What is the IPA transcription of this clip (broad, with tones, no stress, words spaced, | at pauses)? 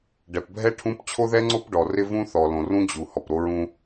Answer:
ɖɛ˨pbʱɛ˦ ʈʰũ˦p t͡ɕʰo˦ðɛ˦ŋ͡ǀo˦p ɖɔ˨rɪ˦vũ˦ θɔ˨lõ˨rũ˦ d͡ʑu˨ hɔ˨pɾo˦ɹũ˦